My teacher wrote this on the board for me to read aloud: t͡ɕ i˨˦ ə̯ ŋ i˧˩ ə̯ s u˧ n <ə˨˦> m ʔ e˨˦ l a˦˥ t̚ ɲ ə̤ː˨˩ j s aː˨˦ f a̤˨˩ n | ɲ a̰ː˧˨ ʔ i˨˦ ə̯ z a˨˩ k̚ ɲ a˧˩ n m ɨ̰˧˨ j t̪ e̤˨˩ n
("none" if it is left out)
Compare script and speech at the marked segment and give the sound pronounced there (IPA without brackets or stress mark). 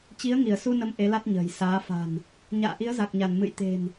ə˨˦